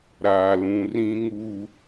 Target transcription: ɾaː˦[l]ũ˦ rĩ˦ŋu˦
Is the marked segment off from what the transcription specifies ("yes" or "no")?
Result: no